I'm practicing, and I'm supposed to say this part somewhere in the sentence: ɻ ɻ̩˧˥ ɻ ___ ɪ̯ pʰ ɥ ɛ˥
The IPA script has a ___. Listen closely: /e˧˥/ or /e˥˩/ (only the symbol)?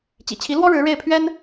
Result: e˥˩